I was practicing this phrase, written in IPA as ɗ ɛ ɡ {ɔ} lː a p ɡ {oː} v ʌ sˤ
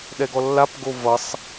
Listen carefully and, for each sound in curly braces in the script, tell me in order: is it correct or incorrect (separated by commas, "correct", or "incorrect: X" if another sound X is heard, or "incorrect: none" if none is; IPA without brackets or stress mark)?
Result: correct, incorrect: o